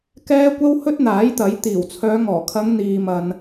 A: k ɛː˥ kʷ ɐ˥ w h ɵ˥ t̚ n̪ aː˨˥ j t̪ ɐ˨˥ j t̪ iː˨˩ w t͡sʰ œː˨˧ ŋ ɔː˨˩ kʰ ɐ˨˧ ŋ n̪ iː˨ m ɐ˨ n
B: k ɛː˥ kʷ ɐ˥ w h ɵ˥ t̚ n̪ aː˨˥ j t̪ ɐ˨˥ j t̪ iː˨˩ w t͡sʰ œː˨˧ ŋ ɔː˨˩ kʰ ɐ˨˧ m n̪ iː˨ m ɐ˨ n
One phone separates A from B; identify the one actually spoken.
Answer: A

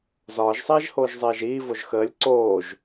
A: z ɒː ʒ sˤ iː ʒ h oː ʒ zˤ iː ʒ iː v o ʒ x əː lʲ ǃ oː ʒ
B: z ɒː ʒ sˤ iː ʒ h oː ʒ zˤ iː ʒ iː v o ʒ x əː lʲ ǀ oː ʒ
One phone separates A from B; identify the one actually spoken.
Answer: B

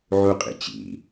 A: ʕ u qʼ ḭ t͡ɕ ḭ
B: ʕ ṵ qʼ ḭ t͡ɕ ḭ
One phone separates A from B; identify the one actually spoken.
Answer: A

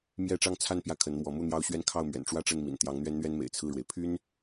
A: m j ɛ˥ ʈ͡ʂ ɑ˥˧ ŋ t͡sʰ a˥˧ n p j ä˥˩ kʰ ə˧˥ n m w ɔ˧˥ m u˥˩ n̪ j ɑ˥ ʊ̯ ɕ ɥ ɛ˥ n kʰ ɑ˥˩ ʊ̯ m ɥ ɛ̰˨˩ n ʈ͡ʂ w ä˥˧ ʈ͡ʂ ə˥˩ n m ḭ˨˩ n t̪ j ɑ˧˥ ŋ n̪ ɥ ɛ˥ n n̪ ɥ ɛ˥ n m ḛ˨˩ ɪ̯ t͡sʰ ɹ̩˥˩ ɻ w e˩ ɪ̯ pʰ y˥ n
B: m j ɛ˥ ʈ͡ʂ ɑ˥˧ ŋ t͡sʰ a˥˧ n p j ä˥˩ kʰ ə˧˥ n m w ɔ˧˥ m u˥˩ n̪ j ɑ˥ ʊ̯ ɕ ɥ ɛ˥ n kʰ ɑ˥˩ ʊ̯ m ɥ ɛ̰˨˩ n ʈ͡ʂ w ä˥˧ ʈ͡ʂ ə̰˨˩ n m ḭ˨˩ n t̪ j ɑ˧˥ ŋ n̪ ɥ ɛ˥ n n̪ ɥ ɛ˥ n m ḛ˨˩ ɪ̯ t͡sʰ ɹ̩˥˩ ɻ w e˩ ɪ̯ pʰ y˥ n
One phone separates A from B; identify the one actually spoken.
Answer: A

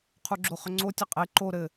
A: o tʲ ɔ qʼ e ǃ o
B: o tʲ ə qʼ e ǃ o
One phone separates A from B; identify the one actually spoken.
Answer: B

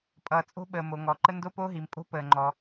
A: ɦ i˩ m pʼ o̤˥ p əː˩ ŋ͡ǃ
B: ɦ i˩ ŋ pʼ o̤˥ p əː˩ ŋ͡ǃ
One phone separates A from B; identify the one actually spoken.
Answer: A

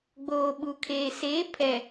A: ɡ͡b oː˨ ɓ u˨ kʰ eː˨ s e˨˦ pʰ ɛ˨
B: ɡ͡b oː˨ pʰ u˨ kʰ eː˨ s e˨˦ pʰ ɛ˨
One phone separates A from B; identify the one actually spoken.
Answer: A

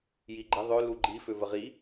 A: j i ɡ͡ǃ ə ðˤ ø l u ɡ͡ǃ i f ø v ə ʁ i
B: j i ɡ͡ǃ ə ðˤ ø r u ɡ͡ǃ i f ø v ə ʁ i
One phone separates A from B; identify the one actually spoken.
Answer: A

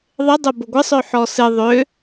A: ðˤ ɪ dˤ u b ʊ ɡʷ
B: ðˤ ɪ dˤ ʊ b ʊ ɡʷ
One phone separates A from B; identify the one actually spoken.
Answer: B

